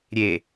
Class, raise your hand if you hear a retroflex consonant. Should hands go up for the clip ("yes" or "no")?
no